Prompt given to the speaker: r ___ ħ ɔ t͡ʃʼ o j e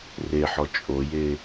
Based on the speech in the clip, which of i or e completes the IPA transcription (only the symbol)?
e